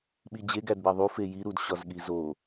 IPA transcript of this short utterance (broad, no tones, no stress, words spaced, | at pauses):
ɓid͡ʑe ɡædbæðˤu feji ɾudɕɒzɠizo